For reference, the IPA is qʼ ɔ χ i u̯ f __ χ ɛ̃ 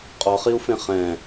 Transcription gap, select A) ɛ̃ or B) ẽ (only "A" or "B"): B